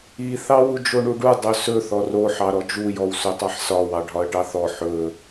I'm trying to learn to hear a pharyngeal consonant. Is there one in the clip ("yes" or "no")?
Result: yes